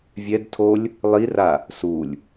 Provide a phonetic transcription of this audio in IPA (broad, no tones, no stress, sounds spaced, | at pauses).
vʲ ɛ d tʰ o lʲ | lˠ i r a | s u lʲ